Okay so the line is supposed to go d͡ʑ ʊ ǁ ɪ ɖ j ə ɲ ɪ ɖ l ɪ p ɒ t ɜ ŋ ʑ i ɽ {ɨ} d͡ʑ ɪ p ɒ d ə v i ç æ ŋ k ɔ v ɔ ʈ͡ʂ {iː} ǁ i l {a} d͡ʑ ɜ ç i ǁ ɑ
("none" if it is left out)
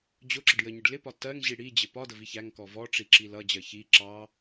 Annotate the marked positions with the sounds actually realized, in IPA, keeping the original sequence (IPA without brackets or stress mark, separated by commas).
i, i, ʌ